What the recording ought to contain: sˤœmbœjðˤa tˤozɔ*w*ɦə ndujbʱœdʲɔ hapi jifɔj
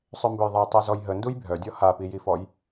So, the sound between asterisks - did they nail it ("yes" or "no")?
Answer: no